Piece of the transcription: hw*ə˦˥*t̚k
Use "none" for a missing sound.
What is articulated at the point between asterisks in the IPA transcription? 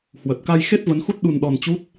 ə˨˩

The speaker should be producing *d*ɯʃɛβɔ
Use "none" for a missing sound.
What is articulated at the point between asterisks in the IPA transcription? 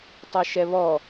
tˤ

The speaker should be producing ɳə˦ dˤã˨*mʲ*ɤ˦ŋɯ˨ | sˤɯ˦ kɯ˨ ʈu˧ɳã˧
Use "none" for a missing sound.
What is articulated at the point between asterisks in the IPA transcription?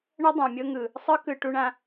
mʲ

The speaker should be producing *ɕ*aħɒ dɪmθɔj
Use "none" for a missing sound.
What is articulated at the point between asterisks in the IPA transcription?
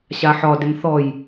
ɕ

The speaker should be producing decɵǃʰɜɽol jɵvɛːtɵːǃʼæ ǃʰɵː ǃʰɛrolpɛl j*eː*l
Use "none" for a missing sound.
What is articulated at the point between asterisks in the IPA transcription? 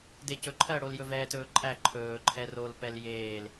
eː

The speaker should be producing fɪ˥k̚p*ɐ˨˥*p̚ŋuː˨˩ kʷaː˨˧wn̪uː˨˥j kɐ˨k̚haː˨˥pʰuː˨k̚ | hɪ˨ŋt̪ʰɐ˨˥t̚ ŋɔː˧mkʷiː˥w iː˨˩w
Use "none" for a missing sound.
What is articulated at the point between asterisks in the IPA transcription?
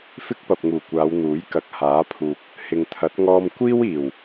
ɐ˨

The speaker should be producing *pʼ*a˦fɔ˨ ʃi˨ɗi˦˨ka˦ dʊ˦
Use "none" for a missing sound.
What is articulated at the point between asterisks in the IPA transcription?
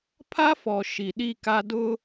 pʰ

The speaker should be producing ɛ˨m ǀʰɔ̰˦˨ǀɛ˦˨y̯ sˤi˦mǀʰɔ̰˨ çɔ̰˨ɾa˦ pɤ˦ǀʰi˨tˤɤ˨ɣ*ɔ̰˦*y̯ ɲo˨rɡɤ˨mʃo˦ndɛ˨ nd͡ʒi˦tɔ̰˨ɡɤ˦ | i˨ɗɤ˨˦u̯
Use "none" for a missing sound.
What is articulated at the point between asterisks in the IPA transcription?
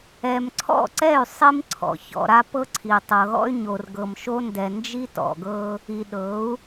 ɔ̰˦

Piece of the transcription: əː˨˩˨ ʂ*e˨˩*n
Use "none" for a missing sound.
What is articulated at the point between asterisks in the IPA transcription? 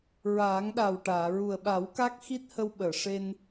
e˧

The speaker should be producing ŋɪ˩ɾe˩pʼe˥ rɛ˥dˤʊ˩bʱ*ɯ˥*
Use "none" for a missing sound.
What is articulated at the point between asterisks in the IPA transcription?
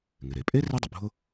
ʊ˥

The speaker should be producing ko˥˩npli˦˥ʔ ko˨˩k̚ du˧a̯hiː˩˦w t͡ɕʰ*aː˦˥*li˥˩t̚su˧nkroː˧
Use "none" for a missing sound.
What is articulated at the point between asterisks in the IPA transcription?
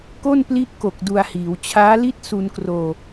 aː˦˥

